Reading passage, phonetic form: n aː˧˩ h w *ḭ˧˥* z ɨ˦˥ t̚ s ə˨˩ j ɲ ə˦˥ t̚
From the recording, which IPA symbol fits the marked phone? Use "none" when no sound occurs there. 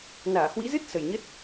ḭ˧˥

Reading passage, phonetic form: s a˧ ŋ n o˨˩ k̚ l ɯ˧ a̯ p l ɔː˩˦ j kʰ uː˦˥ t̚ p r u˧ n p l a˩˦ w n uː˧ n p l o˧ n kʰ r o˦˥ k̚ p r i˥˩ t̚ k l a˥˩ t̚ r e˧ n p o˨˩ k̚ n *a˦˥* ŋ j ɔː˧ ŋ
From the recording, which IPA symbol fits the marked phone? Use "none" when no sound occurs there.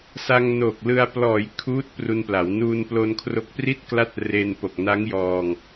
a˦˥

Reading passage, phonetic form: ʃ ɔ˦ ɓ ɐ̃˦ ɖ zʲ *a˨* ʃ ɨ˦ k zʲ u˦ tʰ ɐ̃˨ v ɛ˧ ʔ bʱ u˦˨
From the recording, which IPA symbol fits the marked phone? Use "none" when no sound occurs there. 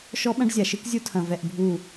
a˨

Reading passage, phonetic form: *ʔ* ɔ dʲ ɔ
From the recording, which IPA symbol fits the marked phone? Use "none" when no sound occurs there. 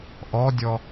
ʔ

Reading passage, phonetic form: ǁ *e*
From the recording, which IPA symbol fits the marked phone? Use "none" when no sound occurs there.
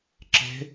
e̤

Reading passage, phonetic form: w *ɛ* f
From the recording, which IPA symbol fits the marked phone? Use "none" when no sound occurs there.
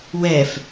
ɛ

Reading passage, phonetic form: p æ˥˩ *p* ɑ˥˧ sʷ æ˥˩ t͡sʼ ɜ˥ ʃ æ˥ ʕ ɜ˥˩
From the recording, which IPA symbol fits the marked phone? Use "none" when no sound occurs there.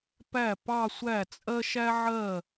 p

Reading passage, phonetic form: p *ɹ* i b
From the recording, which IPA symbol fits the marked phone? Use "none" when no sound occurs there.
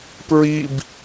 ɹ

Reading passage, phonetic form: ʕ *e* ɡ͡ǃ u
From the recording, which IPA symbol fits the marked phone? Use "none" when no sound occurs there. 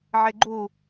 e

